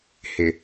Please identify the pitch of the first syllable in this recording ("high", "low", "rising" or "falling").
low